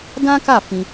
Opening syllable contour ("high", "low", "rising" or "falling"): high